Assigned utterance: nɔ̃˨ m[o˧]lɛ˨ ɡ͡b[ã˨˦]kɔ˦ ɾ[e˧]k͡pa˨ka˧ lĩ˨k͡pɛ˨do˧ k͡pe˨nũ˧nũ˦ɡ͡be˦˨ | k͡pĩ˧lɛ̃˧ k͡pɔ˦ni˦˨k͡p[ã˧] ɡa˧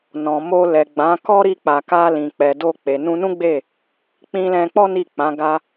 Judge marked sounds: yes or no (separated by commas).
yes, yes, no, no